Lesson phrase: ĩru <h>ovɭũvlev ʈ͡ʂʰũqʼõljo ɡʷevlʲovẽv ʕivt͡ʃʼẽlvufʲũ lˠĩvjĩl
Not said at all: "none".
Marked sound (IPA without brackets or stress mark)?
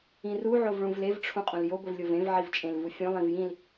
ʕ